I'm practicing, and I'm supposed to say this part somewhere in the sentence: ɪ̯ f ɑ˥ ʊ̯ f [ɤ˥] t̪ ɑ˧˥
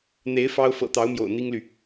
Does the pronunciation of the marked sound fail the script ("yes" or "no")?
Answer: yes